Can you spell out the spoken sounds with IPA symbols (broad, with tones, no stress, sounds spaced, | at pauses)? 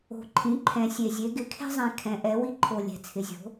o̤˨˩ ǃʰ ĩ˩˥ ǃʰ ɛ̃˨˩ sʲ e˨˩ zʲ e˩˥ ɡ ɪ˩˥ kʰ e̤˦ zˤ ẽ˨˩ kʰ ɛ̃˩˥ ʔ ɛ˩˥ w i˦ ǃʰ o˨˩ lʲ ɛ̤˨˩ t͡sʰ ɪ˩˥ zʲ o̤˩˥